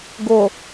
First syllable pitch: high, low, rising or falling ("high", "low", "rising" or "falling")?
low